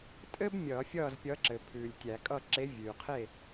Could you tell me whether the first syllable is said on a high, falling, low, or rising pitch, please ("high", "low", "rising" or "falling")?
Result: high